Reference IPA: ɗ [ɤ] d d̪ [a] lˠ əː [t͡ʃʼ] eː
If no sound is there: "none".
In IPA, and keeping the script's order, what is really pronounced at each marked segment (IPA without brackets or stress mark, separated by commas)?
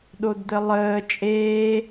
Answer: o, ə, t͡ʃʼ